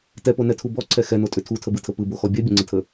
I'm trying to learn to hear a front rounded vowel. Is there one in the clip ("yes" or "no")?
yes